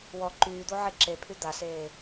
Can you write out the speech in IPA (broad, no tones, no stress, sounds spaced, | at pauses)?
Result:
w ɔ ǃ yː d̪ o ʕ e ǁ e pʰ y d̪ a s eː